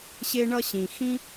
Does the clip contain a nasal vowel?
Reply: yes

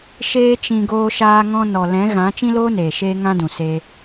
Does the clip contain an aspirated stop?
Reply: no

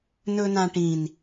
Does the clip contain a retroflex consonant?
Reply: yes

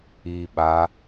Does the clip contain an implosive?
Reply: yes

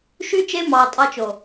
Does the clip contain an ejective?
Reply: yes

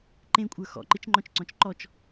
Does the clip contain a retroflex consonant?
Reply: no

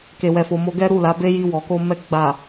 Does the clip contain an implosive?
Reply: no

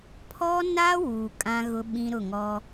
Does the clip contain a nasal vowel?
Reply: yes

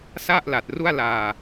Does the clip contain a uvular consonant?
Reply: no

